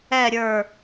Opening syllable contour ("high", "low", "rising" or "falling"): falling